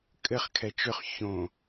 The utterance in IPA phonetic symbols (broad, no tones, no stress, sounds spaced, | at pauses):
kʼ ɘ χ kʰ ɛ t͡ʃ ʏ χ ç õ